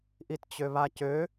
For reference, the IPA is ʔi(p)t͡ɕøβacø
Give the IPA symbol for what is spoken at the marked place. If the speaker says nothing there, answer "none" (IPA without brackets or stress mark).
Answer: t